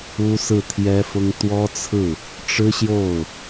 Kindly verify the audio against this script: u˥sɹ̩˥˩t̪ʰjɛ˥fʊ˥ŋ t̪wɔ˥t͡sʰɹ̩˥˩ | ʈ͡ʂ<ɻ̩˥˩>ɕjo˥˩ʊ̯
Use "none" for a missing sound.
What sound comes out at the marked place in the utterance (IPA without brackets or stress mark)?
ɻ̩˥